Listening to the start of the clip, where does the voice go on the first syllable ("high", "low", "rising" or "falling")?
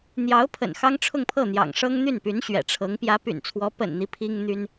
rising